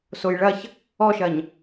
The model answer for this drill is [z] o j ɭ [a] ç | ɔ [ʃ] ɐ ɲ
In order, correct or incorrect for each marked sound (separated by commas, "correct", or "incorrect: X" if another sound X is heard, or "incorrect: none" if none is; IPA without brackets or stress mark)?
incorrect: s, incorrect: ɐ, correct